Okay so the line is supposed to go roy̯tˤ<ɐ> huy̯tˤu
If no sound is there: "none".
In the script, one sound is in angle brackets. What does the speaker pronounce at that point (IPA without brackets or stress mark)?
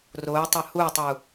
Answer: ɐ